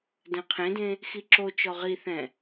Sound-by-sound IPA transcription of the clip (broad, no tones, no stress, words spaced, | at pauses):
dɛ̃qʰẽdẽ | xiǁot͡ʃɔ ʁiθɛ̃